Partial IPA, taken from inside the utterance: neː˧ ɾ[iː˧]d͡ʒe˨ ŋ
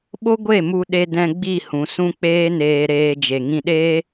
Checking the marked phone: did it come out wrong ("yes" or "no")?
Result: yes